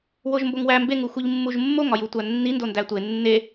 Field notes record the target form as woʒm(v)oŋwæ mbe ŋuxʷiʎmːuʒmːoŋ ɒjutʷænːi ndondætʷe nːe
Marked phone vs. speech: incorrect: b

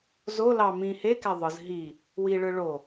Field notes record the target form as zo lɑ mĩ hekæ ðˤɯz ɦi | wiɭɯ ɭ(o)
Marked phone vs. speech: correct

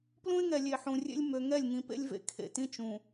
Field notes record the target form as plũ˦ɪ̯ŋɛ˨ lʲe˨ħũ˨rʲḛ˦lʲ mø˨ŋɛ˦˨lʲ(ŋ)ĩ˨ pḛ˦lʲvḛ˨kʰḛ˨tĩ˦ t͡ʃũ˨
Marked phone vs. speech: correct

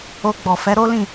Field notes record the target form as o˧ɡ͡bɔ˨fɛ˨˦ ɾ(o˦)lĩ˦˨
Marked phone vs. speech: correct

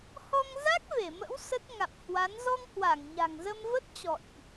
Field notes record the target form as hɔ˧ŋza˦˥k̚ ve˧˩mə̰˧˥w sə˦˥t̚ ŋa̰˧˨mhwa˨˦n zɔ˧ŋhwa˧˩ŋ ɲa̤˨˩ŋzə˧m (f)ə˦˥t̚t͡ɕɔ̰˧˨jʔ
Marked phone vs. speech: incorrect: v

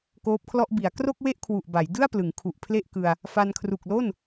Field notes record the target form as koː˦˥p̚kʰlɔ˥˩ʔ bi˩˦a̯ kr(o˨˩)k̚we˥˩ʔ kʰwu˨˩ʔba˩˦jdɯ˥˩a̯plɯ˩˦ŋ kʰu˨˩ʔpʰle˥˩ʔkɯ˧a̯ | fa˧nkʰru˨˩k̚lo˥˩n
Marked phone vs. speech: incorrect: o˥˩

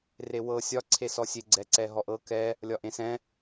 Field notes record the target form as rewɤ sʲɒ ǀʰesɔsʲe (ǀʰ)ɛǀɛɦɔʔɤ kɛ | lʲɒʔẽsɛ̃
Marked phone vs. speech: incorrect: ɡ͡ǀ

